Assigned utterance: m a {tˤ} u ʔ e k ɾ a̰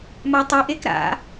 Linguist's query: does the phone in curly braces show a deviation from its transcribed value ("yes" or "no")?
no